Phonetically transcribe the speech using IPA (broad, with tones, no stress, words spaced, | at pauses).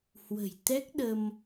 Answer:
hwə̤˨˩jt̪ɛ˦˥k̚ɗə˧m